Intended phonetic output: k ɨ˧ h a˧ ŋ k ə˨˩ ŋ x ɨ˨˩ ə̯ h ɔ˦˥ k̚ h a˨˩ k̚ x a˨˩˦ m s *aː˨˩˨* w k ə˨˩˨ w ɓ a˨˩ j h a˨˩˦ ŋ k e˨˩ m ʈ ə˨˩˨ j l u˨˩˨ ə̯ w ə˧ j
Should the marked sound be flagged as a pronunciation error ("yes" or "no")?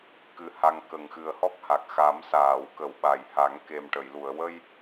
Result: no